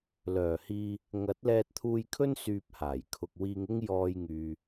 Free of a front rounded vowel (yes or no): no